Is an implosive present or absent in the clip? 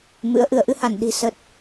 present